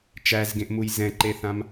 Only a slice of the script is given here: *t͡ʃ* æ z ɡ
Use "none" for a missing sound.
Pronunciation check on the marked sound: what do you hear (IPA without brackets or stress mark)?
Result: t͡ʃ